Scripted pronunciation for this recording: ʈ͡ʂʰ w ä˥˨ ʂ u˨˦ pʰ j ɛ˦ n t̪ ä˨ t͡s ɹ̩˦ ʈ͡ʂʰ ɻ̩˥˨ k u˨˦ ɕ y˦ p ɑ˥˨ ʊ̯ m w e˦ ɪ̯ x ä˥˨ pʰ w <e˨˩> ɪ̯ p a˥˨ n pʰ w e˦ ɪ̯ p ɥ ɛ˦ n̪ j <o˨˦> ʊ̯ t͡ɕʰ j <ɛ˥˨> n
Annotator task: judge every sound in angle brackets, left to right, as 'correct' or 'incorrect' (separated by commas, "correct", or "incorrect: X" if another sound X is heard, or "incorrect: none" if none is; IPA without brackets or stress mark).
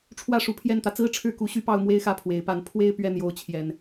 correct, correct, incorrect: ɛ˨˩